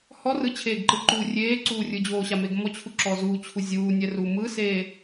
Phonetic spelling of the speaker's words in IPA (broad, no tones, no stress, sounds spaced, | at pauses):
h ɔ r ɯ t͡ɕʰ eː ɡ ǃ ɯ ǃ uː rʲ eː ǀ uː rʲ ɯ d͡ʑ oː ɕ a m e ɡ m ɔ t͡ɕʰ u ǁ ɔ z u t͡ɕʰ u zʲ uː nʲ ɛ r uː m ɯ s eː